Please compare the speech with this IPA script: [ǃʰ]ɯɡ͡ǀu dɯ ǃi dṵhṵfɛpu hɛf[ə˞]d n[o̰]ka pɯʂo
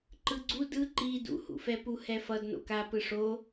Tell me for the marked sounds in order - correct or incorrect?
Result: incorrect: ǃ, incorrect: ʌ, correct

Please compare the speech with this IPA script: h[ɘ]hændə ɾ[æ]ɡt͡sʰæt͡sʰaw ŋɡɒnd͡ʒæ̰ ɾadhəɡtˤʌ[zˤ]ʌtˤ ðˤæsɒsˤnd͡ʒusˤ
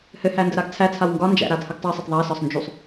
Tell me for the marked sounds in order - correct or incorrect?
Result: correct, incorrect: a, incorrect: sˤ

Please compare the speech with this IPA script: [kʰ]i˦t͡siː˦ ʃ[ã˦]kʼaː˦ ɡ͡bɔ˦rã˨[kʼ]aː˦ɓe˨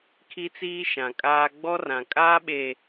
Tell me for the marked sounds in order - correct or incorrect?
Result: correct, incorrect: ã˨, correct

